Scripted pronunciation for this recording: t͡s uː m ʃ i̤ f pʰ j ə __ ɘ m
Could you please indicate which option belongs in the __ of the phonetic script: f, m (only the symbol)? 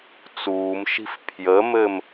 m